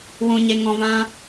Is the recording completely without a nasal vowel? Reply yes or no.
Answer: no